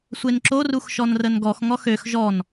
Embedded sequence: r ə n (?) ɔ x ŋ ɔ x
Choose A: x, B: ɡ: B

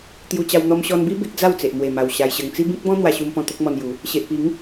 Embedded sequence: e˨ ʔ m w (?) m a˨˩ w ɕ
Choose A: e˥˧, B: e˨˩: B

